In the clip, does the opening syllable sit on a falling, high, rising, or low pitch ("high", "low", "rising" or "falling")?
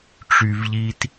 low